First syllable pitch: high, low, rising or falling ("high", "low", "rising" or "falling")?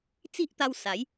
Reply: high